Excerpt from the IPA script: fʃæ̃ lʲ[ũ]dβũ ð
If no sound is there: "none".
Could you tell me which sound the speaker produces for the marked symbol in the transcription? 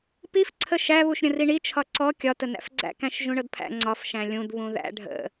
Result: ũ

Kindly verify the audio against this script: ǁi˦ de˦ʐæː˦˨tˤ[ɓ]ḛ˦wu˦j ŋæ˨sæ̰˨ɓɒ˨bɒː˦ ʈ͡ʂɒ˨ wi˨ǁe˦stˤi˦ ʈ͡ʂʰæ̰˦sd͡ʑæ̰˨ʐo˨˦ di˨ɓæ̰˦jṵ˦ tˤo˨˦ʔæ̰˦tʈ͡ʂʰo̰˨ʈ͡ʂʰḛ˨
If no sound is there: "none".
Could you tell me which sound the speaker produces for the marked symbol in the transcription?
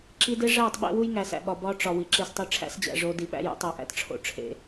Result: ɓ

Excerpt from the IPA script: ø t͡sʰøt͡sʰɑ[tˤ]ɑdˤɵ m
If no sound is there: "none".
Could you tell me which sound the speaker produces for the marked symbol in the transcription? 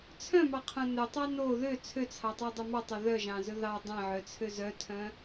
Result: tˤ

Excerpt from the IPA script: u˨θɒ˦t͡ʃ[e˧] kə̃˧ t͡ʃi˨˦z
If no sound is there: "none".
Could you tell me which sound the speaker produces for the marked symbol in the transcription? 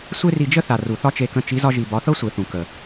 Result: e˧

